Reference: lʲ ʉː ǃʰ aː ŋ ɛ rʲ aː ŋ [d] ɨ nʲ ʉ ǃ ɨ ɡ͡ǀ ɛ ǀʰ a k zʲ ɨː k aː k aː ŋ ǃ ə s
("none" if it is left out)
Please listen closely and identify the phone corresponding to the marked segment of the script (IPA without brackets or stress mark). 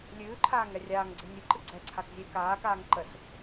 ɡ͡ǀ